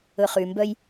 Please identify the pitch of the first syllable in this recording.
low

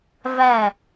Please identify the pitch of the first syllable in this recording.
falling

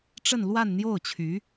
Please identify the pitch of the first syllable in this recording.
falling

